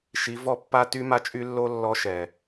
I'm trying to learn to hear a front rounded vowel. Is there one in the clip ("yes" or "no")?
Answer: yes